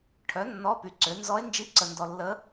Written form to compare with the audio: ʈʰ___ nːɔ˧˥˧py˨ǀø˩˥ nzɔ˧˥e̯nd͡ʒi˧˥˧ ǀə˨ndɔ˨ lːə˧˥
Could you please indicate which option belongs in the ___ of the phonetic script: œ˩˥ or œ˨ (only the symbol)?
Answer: œ˩˥